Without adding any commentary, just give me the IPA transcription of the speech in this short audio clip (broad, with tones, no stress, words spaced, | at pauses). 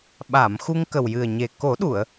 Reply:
ɓa˨˩˨m xu˧ŋkə˨˩wjɨ˨˩ə̯ɲe˨˩ ko˨˩˦ɗu˨˩˨ə̯